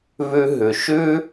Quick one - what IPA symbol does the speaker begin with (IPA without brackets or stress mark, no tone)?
β